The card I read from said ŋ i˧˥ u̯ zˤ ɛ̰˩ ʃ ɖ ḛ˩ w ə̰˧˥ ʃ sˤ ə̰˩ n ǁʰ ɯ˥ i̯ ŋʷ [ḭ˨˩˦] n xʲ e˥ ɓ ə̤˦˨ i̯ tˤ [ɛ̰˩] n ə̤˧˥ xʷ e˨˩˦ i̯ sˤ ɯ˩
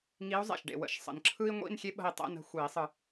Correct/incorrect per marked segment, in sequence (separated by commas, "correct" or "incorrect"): incorrect, incorrect